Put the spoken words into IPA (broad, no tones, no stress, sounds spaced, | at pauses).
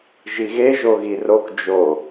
ʒ i ɣ e ʒ o ɣ i r o k d͡ʒ o